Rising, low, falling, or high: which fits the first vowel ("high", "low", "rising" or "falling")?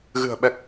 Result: low